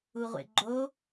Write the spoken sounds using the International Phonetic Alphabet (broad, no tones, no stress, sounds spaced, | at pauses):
u ʁʷ ḛ ɡ͡ǃ o